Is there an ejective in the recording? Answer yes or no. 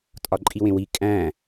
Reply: yes